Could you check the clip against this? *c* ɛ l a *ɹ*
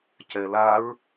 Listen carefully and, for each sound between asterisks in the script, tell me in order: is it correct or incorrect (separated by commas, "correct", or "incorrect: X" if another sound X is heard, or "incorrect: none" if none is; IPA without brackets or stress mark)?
correct, correct